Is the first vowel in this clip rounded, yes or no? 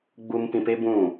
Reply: yes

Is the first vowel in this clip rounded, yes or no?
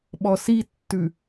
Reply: yes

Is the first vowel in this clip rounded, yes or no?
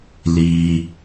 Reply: no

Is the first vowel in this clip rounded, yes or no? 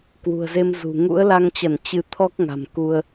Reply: yes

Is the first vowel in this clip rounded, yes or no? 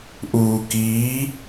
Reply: yes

